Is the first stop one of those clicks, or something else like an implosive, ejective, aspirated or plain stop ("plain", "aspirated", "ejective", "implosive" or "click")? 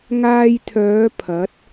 aspirated